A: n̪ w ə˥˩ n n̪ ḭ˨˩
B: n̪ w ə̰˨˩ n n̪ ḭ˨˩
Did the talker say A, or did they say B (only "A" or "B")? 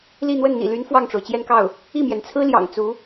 A